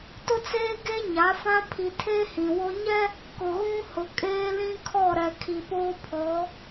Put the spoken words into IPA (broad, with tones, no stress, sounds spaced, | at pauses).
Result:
t ʊ˦ t͡s eː˦ ɡ e˦ ɲ a˨˦ f ã˦ pʰ i˨ tʰ eː˦ h ĩ˨ w o˦ ɲ ɛ˦ | k ʊ˨ ɣ ũ˦ h ʊ˨ kʼ eː˦ l ĩ˦ kʰ ɔ˦˨ ɾ ɛ˨ kʰ i˨ p oː˦ pʰ ɔ˨˦